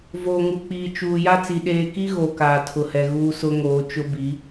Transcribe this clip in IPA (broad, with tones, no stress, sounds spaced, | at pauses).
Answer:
v oː˨ ŋ u˨ k͡p iː˨ t͡ʃ uː˨ j a˦ t͡s i˨ ɗ eː˦ k i˦ ɣ o˨ k aː˨ tʰ ʊ˨ h ɛ˨ ɣ uː˦ s ʊ˦ ŋ oː˨˦ t͡ʃ ʊ˦ b i˨˦